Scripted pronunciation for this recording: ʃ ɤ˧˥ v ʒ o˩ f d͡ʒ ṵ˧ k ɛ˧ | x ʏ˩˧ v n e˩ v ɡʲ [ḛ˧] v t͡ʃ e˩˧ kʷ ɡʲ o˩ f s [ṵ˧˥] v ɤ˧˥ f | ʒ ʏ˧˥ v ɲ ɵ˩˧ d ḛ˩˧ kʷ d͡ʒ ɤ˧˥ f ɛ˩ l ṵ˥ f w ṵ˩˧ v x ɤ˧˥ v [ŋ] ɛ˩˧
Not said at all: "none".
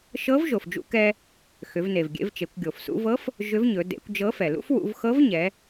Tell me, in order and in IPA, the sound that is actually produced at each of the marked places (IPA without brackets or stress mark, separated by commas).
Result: ḛ˧, ṵ˧, ɲ